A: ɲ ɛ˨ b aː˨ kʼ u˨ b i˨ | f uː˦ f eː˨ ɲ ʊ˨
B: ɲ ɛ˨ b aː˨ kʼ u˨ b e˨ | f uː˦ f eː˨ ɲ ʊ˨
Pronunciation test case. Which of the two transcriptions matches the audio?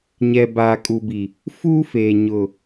A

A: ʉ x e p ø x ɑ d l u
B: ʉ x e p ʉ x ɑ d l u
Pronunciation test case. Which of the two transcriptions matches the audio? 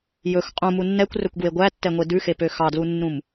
A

